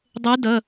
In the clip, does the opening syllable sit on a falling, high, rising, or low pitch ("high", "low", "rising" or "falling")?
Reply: rising